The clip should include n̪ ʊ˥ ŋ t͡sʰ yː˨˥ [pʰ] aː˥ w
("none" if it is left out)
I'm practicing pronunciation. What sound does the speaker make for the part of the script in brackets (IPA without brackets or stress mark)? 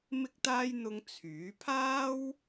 pʰ